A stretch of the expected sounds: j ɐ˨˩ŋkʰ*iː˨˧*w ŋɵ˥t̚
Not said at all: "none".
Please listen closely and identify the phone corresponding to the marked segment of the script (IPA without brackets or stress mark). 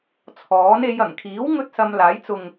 iː˨˥